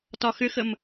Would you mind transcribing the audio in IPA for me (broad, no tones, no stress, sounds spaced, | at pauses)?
t ɒ x ʏ x ə m